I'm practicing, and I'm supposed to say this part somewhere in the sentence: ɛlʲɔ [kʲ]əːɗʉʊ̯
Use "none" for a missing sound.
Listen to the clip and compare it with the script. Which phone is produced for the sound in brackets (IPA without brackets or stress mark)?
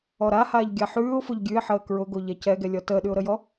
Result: t